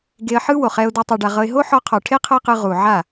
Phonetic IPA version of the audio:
ɡe˧ə̯ħɯ˦wo˨χɛ˧ʊ̯ do˦tˤu˧ɖa˧ʁɤ˦ɪ̯ ɦo˦ ħɔ˧qʰɔ˨ʈʰe˦ qʰɤ˦qɯ˧ ʁu˨ʕa˦˨

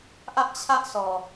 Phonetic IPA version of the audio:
ʔä˦ʔt͡ɕʰä˦ʔsʰɔ˨

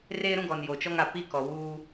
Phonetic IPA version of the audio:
reː˦ɾũ˦ɡɔ˨n jo˨t͡ʃɔ˦ŋa˨ pi˦kɔ˨wuː˦

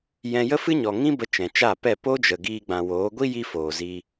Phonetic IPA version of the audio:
jɛ̃˧jə˦fɨ˦ɲɔ˨ ŋĩ˦bə˧ t͡ʃɛ̃˨t͡ʃa˦˨ pɛ˦˨ po˦d͡ʒə˨ ɡiː˧ɡ͡bã˨woː˨˦ ɡʷi˦ji˧ foː˨zi˧

